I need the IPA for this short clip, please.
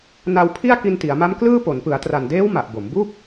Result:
na˧wpʰi˥˩a̯ ki˧nti˩˦a̯ma˦˥mklɯː˥˩ po˩˦npɯ˩˦a̯tra˨˩ndeː˦˥w ma˨˩ʔbo˩˦m bu˥˩k̚

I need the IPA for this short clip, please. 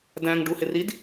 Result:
dæ̃ŋɖuhɪrid

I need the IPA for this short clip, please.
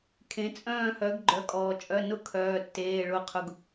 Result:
kʰẽ˩˧t͡sʼœ̃ː˦˨ hœ˩˧ɡɡ͡ǃœ˩˧kʼɔː˩t͡ʃʼœ˩˧˩ nʊ˦kʰœː˩˧˩tːeː˩˧˩ ɭʊ˦˨qʰʊ˦ɡ

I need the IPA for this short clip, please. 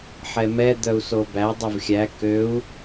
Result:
ħɛmɛ d̪œu̯sobæ dˤʉvxʲæ køu̯

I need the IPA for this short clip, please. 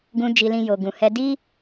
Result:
ɡũ˧ d͡ʒi˧lĩ˧ jo˨ɡũ˨hɛ˧ di˦

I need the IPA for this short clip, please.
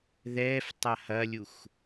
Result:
ðɛːftˤa hɐlʲux

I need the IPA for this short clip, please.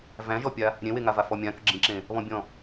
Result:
væ̃ʒɔpʲa | ɾʲẽweŋava fɔmʲãkʏ ɡ͡ǁĩǁẽ | βɔ̃bʲɔ̃

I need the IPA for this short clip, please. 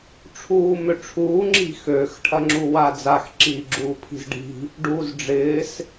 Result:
ʈ͡ʂʰuːmøʈ͡ʂʰuː ŋ͡ǁi̤xøx ʈʰɐŋ͡ǁuwad͡zax ǁiːɡ͡ǁuːpʰi̤zɖi̤ | ɖuːzɖ͡ʐɪːs

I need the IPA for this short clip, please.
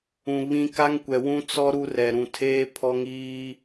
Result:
ũ˨ βĩ˦ ka˦ŋkʷɛ˨wũ˦ t͡sɔ˦ ɾu˦rɛ˨ ɾũ˨tʰeː˦ pʰɔ˦ŋiː˦

